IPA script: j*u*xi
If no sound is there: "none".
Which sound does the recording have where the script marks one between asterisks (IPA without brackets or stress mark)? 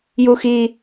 u